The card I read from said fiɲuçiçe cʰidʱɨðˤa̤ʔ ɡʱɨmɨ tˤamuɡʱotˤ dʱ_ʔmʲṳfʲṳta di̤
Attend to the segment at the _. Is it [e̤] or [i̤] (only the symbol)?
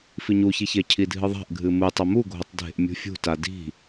e̤